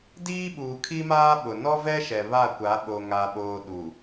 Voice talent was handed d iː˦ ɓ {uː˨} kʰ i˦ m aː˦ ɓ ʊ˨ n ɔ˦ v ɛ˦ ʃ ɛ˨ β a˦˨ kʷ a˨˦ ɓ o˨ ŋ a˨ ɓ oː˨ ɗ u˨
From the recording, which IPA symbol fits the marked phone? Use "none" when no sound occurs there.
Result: uː˨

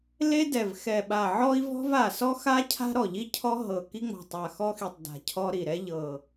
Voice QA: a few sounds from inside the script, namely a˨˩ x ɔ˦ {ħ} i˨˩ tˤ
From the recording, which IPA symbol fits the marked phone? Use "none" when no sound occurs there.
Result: x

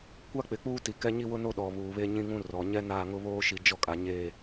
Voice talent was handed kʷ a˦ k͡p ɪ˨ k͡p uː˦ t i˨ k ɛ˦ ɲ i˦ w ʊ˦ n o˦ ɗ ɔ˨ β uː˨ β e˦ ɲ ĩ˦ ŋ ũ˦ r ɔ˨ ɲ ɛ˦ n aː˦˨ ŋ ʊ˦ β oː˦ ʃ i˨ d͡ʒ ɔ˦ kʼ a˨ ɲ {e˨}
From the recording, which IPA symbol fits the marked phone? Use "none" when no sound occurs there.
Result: e˦˨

